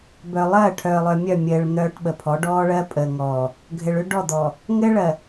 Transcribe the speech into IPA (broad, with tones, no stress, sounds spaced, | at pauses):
b œ˨ lˠ ɜː˦˨ ʈʰ œː˨ lˠ œ˨ mʲ œ˦˨ mʲ ɘː˨ ɭ n̪ œː˨ ʈ ɓ ə˨ pʰ ɔ˨˦ ɖ ɔː˦ ɭ ɜ˦ pʼ ə˨ ŋ ɔː˨ | ɡʱ ɘ˨ ɭ ʏ˦ ɖ ɔ˦˨ d̪ ɔː˨ | ŋ ɘː˦ ɭ ɜ˨